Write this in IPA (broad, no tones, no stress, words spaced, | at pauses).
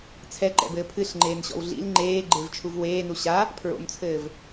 t͡sʰɛǃɛ̰bɘː pʰɨɬŋ͡ǃeːnɕɔ̰w ɮḭl ŋ͡ǃeːɡ͡ǃevt͡ʃʰuv weːnu ɕa | pʰɹo̰mt͡sʰɘːv